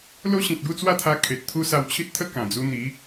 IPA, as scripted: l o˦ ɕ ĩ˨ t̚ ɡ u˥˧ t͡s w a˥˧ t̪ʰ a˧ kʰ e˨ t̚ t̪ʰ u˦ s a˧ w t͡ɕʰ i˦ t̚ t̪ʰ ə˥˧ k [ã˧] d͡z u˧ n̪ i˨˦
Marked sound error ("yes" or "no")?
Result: yes